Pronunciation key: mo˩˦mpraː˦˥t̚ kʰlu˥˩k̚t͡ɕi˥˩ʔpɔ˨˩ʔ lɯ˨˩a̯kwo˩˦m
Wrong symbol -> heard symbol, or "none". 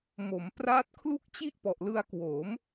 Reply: ɯ˨˩ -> ɯ˧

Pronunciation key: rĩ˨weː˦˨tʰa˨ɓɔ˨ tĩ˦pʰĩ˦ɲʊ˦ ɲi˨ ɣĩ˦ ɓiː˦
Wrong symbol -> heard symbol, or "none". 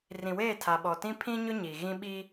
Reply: none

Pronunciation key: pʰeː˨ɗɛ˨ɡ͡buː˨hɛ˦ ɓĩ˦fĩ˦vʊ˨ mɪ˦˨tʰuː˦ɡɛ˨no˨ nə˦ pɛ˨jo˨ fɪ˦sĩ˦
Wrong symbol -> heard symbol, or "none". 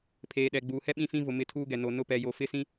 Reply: ə˦ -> ʊ˦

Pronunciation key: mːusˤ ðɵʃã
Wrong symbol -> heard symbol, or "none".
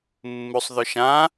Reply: none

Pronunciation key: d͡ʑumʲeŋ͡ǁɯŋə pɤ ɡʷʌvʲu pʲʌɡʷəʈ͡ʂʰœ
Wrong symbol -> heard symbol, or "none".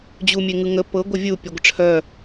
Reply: ŋ͡ǁ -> ŋ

